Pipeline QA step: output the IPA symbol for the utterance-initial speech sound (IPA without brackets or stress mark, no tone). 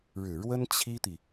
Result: ɻ